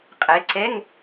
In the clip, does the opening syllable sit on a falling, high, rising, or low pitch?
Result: rising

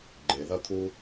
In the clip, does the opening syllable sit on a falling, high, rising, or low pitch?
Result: low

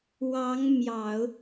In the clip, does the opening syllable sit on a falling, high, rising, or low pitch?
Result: rising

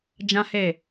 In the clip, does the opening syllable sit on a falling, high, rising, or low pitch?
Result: high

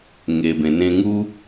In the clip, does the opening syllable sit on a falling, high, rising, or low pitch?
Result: low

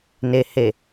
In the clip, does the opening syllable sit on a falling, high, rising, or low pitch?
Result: low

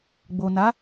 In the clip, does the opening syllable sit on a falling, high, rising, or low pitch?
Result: low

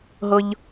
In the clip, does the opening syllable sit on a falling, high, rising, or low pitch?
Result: low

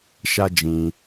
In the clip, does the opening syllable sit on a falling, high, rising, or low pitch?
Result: high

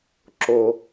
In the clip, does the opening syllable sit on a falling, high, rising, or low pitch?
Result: low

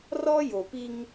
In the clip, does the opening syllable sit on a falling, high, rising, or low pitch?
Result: high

